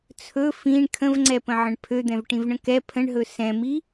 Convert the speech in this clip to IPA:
t͡sʰ ɵ f ĩ ɳ kʰ ə̃ v ŋ͡ǀ ɛ p ə̃ ʕ ə̃ ɳ pʰ ø d̪ ɛ̃ v ʈ ĩ v ɳ ə̃ k ɛ pʰ ə̃ ɳ ɦ ɵ s ɛ̃ m i

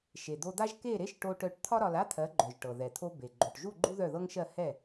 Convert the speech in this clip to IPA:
ʃ e˩ d̪ o˧ d̪ a˥ ʒ k e˥˩ ɾ e˥ ʃ ʈ o˧ ʈ œ˧ ʈ t̪ʰ ɒ˥ ɾ ɒ˧ l a˥ t̪ʰ ɜ˩˥ ɡ͡ǃ œ˩ ʒ ʈ ɤ˩ ð ɛ˩ t̪ʰ o˧ b e˩ ɡ͡ǃ o˩ ʈ ʒ u˥˩ ɡ͡ǃ u˥ ð œ˥˩ ð ɤ˥ ŋ ʃ ɜ˥˩ h ɛ˥˩

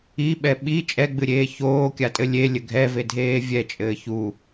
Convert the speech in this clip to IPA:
i ɓ ɛ ɓ i t͡ʃʼ ɛ ɡ͡b ɨ ɾʲ eː ç oː kʲ a tʼ ɘ lʲ e lʲ ɘ ɡʱ ɛ v e dʱ eː vʲ ɛ t͡ʃʼ ɘː ç u

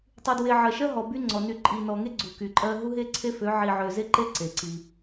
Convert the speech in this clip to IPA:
tˤ y˨ d w e˨ ʕ ɜ˨ ʃ ɜ˦ ɦ ɔ˨ b y˦ ŋ͡ǀ ɔ˨ n y˨ ǃʼ i˨ n ɔ˨ ŋ e˦ ɡ͡ǀ u˨ k y˨ ǃʼ ɜ˦ ɦ u˦ ɦ e˦ ǀʰ e˦ f ø˨˦ ʕ i˨ ʕ ø˨ z e˦ ǃ e˦ ǀ e˨ ǀ i˦

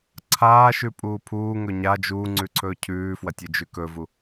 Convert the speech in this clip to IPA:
ǀʰ aː ʃ ʉ pʼ uː pʰ uː ŋ ɵ ɲ a d͡ʒ uː ŋ͡ǀ ʉ ǀʰ ɵː cʰ ʉː f w ɐ tʲ ɨ d͡ʒ ʉ k ɵ v u

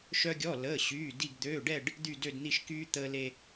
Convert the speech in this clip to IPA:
ʃ œ˧ ɡʲ ɔ˩˧˩ l əː˩˧˩ ɕ yː˩˧˩ d i˧˩ ɡ d̪ øː˩˧˩ ɖ ɛ˥˨ ɖ | d̪ y˧˩ d ø˧˩ d n̪ i˧˩ ʃ k yː˧ t̪ əː˧ l e˧

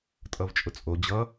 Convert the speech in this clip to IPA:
tʼ ʌ v t͡ʃʼ ʊ t͡sʼ o d͡ʑ ʌ

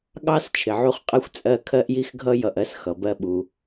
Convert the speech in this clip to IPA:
ɠ ɑ˥ s t͡ʃʰ ɪ˩ ʕ u˥ χ qʼ ɛ˥ xʷ t͡sʼ ɜ˥ kʰ ɜ˥ ʔ j i˥ x ɡʱ ʌ˥ j ʌ˩ ʔ ɜ˥ s x ʌ˩ b ɜ˥ ɓ u˩

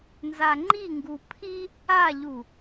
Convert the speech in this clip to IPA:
n z a ŋ͡ǃ i ŋ ɡ u pʰ i | a ʎ u

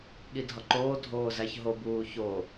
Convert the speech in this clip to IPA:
ɠ i dʱ ɒ ǃ oː dʱ oː z æ ç ɦ o b uː ç o

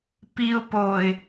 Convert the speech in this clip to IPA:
p i ʊ̯ p o ɪ̯

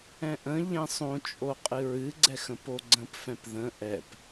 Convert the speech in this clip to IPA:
ɛ̃ ʔ ə̃ ʎ ɛ̃ sˤ õ t͡ʃʼ o qʼ ɨ ɹ ɨ ɡ͡ǀ ɛ x ə̃ p o ɡ͡ǀ ə̃ p f ɛ̃ p ð ə̃ ʔ ɛ p

